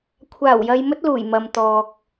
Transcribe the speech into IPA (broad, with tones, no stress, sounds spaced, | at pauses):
kʷʰ aː˨˩ w j ɐ˨ j m ɵ˥ t̚ l uː˨˩ j m ɐ˨ m t̪ ɔː˨ k̚